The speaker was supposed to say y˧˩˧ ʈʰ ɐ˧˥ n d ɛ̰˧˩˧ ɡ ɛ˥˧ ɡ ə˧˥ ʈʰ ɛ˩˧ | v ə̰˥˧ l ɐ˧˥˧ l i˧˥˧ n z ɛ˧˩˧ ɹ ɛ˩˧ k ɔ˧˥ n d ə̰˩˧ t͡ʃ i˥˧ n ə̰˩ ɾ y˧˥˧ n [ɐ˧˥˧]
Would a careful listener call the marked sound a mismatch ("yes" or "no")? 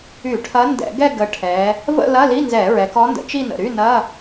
no